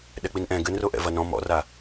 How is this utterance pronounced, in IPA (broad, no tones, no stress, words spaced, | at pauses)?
ɗɛk͡pinʔɛ̃ ɡɘnroʔɛ̰ vɐnɔ̃ mɔ̰ra